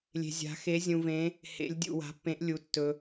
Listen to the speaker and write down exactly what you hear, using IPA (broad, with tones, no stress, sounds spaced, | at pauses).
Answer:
lʲ e̤˧ zʲ a̤˧˥ x e˧˥ zʲ ũ˧ v ẽ˧˥ | h ḛ˧˥ lʲ dʲ ṵ˧ w a̤˧˥ pː ẽ˧˥ ʔ lʲ u˧ tː ɵ˧